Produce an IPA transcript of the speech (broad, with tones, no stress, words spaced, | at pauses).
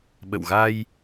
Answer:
ɓə̰˧˨wɣa˧j